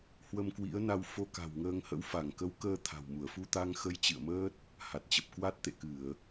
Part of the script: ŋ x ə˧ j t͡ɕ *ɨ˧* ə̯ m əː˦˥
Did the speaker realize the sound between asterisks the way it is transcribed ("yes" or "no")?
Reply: no